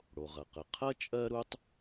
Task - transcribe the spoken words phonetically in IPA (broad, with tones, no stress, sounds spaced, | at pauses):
ɽ o˩ ʁ ɐ˩ q ə˩ qʰ ɐ˥ t͡ʃʼ ɜ˥ ɾ u˥ tˤ